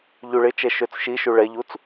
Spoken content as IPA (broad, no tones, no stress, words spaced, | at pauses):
ʎuɭɪt͡ʃɛ ʃøt͡sʃiʃu ɭɛʎut͡s